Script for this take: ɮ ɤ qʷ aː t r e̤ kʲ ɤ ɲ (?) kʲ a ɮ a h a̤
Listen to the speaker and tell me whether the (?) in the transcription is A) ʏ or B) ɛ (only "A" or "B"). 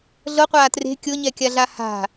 B